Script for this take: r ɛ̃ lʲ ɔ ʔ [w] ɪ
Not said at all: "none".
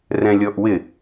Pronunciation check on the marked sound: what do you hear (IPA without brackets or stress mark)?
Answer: w